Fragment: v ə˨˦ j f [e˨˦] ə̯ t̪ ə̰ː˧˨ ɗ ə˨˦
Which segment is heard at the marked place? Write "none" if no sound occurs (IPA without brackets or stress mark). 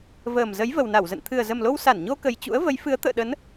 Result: ɨ˨˦